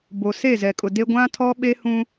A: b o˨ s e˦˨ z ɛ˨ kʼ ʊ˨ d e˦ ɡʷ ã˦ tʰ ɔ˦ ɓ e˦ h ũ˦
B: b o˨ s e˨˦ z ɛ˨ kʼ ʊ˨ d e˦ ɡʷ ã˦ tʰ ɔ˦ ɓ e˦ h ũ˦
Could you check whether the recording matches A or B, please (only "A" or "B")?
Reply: A